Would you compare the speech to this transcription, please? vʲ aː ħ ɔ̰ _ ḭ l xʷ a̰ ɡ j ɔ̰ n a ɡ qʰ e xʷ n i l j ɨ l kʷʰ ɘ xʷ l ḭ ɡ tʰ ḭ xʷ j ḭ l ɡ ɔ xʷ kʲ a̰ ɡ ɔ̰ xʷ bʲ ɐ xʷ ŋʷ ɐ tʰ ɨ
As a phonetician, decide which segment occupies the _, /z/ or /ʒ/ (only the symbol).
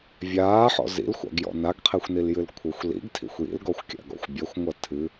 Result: z